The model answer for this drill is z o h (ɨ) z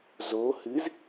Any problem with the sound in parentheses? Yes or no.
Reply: no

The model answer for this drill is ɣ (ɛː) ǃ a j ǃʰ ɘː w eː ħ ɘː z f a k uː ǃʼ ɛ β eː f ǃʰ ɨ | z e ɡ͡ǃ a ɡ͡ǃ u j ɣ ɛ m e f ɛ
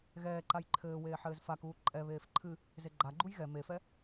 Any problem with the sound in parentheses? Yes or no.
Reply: no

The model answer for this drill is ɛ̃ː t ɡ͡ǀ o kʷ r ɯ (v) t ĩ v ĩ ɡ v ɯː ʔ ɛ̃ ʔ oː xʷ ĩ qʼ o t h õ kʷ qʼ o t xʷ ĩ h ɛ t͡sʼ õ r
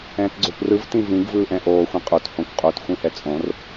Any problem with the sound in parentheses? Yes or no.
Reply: no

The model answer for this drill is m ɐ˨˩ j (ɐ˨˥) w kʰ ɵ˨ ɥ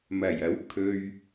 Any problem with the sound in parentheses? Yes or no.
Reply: no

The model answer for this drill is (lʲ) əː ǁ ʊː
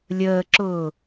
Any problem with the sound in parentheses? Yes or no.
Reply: no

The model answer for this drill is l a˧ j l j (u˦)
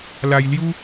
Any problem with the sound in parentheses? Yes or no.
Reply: no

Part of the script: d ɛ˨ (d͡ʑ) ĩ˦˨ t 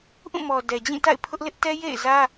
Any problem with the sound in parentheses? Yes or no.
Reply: no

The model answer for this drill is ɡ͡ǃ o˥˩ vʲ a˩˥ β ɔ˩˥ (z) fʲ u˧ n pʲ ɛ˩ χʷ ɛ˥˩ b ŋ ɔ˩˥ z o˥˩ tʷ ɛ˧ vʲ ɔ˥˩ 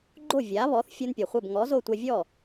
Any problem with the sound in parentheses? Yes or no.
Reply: yes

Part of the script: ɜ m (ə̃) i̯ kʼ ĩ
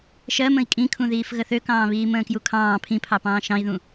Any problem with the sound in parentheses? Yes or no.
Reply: no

